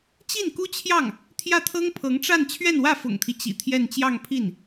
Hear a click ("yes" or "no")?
no